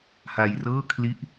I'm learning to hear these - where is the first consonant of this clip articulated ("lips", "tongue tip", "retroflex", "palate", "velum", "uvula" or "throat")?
throat